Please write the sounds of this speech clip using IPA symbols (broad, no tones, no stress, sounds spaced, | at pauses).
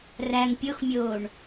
r æ ŋ pʲ o x mʲ oː ɳ